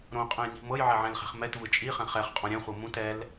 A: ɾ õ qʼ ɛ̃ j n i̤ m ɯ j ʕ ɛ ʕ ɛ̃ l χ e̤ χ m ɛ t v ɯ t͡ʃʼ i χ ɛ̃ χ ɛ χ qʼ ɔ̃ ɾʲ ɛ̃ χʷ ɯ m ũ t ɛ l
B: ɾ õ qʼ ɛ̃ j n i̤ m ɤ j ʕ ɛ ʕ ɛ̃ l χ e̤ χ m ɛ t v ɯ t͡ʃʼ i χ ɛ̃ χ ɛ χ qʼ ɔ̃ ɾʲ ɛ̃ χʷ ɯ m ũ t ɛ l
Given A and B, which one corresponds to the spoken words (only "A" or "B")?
B